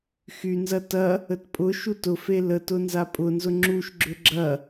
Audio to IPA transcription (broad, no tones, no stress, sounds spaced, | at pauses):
x y n z ɐ t ɐ | ə t pʼ ʊ ʃ u t ʊ f e l ə t ʊ n z a pʼ ʊ n z ʊ ŋ͡ǁ u ʃ ɡ͡ǁ ʏ ɡ͡ǁ ɐ